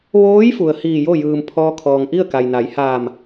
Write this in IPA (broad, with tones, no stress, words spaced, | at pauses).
ʋoː˧˥j fu˩ə̯hiː˧˩jo˥˨ jɯː˩m pʰɔː˧kʰɔː˩ŋʔi˥˨ə̯ ka˩jna˩˧jhaː˧˩m